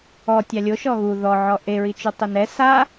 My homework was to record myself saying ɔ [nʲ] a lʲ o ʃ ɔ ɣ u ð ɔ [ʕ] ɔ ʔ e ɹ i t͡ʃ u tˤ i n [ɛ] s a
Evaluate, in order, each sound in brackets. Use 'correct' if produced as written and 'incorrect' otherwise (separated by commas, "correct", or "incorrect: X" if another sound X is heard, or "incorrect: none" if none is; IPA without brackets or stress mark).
incorrect: tʲ, correct, correct